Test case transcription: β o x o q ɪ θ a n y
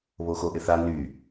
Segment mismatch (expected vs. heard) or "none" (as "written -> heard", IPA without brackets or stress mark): q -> ʔ